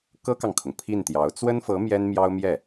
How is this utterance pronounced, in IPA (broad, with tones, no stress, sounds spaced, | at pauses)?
k ɤ˥ k ɑ˨ ŋ kʰ ʊ˩ ŋ pʰ i˥˩ n t̪ j ɑ˧˥ ʊ̯ t͡s w ə˥ n f ɤ˧˥ m j ɛ˥ n m j ɑ˥ ʊ̯ m j ɛ˥˩